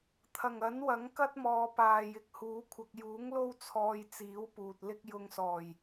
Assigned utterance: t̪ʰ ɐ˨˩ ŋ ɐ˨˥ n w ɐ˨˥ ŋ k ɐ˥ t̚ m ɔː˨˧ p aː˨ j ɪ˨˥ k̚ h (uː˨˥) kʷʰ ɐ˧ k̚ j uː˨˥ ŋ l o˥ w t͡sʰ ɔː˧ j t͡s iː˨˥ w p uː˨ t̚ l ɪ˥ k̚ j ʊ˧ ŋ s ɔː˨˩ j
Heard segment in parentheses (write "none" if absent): uː˨˥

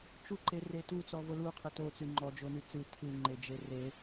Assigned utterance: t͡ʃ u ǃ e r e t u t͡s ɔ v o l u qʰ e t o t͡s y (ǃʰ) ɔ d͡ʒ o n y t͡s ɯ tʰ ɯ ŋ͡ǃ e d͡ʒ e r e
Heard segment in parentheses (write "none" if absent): ŋ͡ǃ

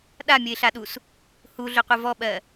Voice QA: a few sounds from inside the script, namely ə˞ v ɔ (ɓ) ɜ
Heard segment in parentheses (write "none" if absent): ɓ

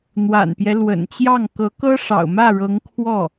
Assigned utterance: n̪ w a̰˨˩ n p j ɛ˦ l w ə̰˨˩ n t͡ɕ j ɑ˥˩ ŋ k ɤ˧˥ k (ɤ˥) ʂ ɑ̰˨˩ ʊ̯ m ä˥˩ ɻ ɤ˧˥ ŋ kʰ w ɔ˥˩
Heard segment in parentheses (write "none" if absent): ɤ˥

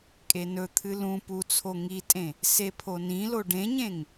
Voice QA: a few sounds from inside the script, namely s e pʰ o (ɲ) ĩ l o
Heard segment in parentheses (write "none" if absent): n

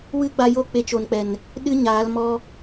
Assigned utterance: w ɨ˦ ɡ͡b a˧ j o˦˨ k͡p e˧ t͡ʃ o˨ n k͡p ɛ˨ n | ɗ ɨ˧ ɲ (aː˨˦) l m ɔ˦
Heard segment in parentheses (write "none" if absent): aː˨˦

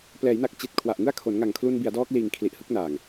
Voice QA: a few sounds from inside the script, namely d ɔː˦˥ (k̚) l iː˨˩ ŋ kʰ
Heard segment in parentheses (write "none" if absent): k̚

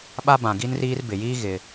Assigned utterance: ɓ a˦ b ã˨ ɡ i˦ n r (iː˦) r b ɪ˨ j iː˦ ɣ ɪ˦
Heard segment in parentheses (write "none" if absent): iː˦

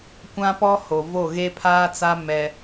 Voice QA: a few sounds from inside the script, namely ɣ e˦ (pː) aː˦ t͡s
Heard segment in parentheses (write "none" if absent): pʰ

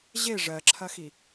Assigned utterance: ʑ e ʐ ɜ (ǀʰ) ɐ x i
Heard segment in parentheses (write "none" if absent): ǁʰ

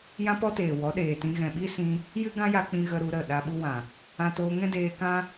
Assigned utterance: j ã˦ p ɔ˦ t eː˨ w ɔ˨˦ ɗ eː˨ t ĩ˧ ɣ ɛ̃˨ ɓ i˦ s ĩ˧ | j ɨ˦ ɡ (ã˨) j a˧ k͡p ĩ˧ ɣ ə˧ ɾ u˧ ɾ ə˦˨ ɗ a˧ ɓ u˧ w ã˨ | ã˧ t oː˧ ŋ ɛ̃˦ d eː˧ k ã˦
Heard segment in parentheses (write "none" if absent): ã˦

